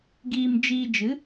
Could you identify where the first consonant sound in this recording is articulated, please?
velar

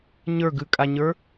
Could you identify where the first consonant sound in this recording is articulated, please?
palatal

